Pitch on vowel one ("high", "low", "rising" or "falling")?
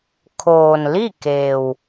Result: low